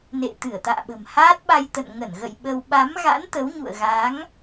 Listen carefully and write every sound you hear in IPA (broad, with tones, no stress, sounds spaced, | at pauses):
n ḛ˧˨ t̪ ɨ˧˩ ə̯ t̪ a̰ː˧˨ ɓ ə̤˨˩ m h aː˦˥ t̚ ɓ a˧ j t̪ ə̰˧˨ n ŋ ə˧˩ n ɣ ə̰˧˨ j ɓ ə˧ w ɓ a˨˦ m ɣ a̰˧˥ n t̪ ə˨˦ w ɲ ṵ˧˨ ə̯ ɣ a˨˦ ŋ